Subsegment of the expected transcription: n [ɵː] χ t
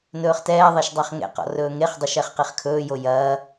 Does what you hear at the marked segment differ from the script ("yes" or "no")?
no